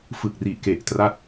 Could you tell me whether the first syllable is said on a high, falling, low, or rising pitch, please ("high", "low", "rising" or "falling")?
low